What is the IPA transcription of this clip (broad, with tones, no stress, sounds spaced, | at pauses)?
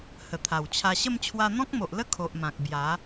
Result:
h ə˨˩ t̪ʰ a˨˩ w t͡ɕʰ a˧ ɕ ə˥˧ m t͡ɕʰ w a˧ n̪ ɔ̃˦ k̚ m o˨ ʔ l ə˥˧ kʰ o˨ ʔ m ã˨ k̚ b j a˨˦